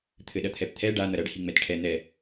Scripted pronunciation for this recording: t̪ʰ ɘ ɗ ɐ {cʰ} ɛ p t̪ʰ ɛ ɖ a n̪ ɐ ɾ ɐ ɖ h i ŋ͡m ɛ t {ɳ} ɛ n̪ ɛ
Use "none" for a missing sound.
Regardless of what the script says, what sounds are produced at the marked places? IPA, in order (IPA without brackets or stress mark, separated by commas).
t̪ʰ, ʈʰ